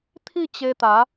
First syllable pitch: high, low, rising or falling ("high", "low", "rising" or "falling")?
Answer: falling